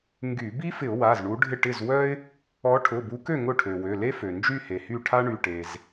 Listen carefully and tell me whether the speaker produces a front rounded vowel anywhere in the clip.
yes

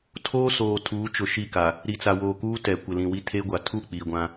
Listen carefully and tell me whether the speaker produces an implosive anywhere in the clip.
no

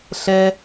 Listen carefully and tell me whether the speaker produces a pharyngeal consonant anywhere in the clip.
no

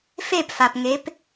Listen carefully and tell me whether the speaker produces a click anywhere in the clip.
no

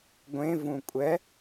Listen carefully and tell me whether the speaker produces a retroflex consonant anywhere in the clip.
no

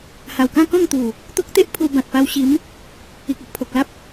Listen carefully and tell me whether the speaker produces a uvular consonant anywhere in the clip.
no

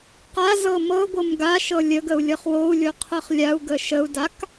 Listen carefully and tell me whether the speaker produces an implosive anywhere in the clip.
no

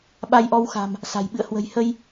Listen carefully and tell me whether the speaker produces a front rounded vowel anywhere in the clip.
no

